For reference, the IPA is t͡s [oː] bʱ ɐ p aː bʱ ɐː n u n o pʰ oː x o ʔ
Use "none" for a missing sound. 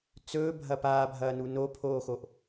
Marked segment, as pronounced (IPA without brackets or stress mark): ɵː